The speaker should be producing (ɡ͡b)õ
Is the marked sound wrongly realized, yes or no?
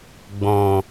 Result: no